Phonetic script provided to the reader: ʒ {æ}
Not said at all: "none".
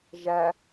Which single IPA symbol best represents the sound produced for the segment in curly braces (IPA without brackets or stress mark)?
æ